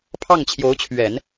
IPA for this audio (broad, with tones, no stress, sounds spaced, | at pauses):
pʰ ɑ˥˩ ŋ t͡ɕʰ j o˧˥ ʊ̯ t͡ɕʰ ɥ ɛ˨˩˦ n